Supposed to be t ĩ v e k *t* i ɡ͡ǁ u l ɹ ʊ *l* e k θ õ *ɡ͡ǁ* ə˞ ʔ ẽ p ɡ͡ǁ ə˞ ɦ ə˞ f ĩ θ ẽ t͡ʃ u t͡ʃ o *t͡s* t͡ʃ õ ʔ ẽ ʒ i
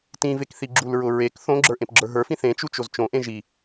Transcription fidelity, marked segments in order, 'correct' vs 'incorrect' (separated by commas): incorrect, incorrect, correct, incorrect